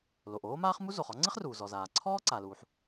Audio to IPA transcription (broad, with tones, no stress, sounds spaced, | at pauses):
l o˩ ʔ oː˥ m aː˥ χ m u˥ z o˩ χ ɔ˥ ŋ͡ǀ ɪ˥ χ r uː˩ z ɔ˩ z aː˩ ǀʰ ɔː˥ ǀ a˩ l uː˩ ħ